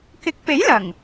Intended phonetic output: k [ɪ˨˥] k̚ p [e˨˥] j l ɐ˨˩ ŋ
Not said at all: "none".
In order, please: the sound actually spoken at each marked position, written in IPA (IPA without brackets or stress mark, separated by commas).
ɪ˨˥, e˨˥